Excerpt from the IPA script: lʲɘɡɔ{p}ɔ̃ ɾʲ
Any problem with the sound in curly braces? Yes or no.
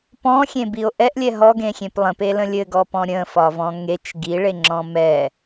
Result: no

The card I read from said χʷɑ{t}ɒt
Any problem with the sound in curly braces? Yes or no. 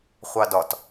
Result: yes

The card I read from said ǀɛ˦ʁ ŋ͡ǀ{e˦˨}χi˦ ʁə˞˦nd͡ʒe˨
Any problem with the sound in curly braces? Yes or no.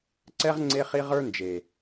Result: yes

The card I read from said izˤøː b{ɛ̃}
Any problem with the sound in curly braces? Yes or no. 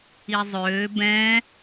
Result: no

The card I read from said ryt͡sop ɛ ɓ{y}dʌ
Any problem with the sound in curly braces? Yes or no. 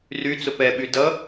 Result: no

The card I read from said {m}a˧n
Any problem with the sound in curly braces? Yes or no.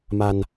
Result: no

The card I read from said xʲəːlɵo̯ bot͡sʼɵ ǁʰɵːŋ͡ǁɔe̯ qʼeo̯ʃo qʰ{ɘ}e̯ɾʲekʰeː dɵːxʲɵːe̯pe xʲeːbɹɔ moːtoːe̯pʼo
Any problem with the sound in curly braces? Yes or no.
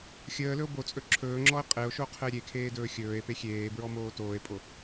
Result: no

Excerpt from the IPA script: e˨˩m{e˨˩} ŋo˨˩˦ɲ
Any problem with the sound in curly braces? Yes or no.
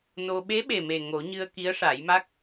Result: no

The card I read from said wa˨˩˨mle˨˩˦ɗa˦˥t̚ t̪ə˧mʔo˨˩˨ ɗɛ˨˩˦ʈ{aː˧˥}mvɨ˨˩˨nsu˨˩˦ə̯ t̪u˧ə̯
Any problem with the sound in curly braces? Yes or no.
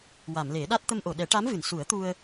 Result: yes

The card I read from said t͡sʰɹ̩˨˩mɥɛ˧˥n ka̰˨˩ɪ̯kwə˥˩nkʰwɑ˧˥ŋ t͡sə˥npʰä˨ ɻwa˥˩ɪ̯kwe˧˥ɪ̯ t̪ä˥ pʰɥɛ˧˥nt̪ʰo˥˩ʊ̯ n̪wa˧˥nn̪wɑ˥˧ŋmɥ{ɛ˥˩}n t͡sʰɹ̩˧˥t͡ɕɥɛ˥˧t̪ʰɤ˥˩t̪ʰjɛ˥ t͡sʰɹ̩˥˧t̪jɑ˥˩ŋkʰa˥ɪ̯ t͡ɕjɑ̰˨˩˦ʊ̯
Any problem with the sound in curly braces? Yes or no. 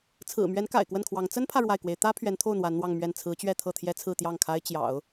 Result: no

